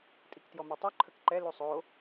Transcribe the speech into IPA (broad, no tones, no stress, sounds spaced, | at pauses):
tʼ i k t j ɔ m u tˤ u ǃʰ ə k ǃ ɛ l u sˤ o